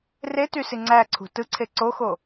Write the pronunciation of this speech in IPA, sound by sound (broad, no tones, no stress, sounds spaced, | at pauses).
r e t y s i ŋ͡ǀ æ ǀʰ ṳ t ɯ ǀʰ e ǀ o x o